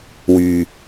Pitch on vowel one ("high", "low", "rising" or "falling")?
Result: low